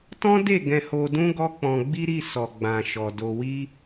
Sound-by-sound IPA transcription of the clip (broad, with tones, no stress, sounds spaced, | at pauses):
t ɔ̃˦ d e˦˨ ɡ ɛ̃˧ h o˧ d ũ˦ ɡ ɔ˦ k͡p ɔ̃˧ ɡ͡b i˦ ɾ i˦˨ s ɔ˨ ɡ͡b ã˨ ʃ ɔ˨ d o˧ w i˦